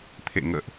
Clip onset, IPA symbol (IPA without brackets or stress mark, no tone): t̪ʰ